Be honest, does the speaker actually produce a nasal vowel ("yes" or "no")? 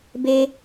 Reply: no